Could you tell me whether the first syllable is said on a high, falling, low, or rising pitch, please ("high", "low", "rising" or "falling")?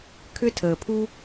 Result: high